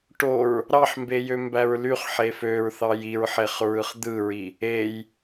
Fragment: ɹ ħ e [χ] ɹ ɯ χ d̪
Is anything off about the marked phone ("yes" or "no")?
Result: no